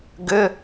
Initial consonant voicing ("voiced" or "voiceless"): voiced